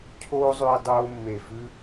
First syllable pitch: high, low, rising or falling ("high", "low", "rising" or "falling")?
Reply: high